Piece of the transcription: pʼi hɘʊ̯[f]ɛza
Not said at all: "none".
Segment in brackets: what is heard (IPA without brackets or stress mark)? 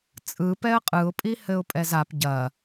pʼ